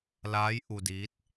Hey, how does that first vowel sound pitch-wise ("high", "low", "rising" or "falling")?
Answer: rising